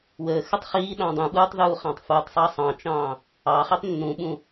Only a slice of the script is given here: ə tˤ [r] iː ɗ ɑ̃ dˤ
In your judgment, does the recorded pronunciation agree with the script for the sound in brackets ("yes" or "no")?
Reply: no